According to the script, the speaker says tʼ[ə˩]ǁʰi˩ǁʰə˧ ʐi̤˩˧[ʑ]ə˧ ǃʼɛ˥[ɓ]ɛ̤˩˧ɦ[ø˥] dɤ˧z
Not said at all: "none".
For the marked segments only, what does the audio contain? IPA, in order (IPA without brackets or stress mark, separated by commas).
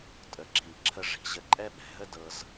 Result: ə˩, ʑ, ɓ, ə˥